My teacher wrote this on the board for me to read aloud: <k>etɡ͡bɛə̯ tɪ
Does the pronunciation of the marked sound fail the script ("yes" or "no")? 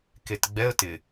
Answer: no